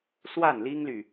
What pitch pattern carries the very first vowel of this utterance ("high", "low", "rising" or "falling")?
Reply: falling